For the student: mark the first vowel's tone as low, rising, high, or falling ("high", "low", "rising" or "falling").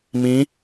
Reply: rising